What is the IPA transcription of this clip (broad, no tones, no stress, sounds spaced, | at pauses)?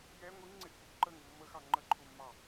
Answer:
j ɛ ŋʷ i ŋ ŋ͡ǀ ɪ ʔ kʷ i p ǃ ə ŋ ʊ mː ə x ɑ ŋ͡ǃ ə ǃʰ ʊ mː ɑ